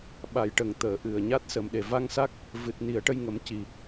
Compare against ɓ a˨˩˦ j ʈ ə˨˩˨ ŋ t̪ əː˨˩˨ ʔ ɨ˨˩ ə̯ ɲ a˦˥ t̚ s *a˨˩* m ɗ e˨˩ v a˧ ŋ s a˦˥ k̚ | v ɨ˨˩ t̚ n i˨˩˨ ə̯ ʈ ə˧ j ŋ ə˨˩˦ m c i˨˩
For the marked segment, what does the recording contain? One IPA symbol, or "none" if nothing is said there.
ə˨˩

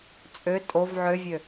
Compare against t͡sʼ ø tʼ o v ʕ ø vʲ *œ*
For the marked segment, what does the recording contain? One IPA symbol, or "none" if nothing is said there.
ø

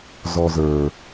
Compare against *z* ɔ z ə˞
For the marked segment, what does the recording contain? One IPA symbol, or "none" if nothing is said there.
z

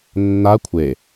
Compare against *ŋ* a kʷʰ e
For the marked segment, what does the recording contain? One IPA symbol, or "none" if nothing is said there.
nː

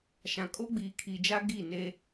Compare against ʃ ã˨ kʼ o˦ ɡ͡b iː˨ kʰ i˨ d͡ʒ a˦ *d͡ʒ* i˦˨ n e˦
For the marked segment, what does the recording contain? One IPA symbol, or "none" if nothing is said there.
ɡ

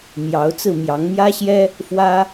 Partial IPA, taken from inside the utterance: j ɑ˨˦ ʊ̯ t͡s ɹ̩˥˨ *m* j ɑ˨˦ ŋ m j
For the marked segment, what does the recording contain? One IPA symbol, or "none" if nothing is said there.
m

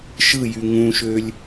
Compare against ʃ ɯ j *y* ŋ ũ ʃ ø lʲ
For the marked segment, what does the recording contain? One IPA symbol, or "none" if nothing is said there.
y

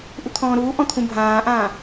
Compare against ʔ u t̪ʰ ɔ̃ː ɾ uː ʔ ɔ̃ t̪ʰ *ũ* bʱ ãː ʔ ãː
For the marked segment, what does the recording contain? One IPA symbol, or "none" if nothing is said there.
ũ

